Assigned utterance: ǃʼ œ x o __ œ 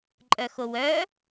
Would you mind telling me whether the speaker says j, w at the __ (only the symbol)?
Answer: w